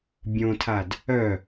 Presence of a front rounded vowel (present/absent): present